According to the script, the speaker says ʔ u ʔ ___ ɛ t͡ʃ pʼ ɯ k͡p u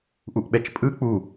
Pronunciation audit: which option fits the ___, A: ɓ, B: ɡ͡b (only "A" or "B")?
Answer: A